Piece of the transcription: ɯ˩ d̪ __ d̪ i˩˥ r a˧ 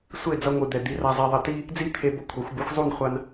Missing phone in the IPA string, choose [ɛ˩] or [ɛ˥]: ɛ˩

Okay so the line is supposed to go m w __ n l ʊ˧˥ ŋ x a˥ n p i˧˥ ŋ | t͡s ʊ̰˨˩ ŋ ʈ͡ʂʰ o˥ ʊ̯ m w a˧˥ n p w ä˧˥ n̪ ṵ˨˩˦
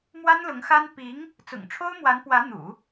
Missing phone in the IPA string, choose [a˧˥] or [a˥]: a˥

